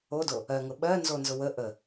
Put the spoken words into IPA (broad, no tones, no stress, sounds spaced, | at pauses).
o d o | ɜ ŋ ʊ ɓ ɜ n z o n z ʊ w ə ʔ ə